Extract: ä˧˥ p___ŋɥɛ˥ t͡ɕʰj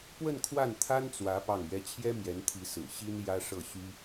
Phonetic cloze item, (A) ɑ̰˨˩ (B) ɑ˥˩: B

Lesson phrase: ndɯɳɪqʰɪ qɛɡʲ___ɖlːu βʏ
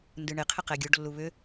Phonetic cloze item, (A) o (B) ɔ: A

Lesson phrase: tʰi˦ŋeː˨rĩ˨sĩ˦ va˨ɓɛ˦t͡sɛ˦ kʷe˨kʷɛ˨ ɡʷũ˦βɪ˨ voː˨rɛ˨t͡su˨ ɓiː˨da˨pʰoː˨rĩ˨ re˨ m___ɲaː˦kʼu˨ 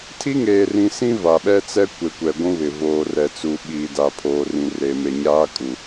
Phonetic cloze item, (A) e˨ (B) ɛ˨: A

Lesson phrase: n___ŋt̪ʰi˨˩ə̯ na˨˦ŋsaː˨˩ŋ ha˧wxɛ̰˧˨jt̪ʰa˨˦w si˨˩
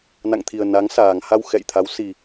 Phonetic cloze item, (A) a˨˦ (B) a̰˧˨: B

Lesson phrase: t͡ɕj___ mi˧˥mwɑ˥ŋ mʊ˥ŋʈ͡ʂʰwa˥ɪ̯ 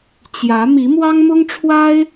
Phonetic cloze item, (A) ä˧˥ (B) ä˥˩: A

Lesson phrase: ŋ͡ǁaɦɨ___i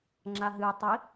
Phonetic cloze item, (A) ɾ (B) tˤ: B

